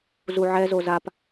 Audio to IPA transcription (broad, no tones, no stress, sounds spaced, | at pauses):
z u ʕ ɛ z o z a p